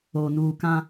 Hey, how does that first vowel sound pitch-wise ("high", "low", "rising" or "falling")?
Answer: low